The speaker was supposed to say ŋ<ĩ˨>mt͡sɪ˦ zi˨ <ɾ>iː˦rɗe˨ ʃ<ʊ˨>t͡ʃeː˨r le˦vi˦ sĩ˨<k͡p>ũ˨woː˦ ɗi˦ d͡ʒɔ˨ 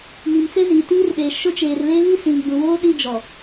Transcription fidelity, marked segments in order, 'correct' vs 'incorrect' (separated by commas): incorrect, incorrect, incorrect, incorrect